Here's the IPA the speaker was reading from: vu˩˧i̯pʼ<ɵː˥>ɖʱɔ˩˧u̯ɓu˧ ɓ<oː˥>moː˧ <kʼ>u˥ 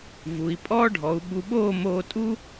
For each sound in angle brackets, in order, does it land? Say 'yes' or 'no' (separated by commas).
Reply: no, no, no